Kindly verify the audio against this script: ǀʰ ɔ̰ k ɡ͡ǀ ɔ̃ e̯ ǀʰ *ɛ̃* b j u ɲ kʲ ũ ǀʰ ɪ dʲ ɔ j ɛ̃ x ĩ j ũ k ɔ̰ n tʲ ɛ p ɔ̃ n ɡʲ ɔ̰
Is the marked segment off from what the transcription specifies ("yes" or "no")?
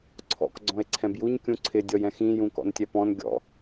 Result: no